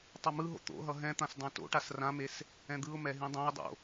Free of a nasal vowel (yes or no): no